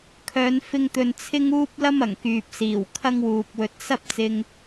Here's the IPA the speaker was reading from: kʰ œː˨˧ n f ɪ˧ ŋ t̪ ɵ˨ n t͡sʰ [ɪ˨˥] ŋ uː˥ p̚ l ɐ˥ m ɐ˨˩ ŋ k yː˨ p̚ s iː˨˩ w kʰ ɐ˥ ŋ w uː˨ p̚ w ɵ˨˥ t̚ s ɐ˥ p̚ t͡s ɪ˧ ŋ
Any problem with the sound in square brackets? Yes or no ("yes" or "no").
yes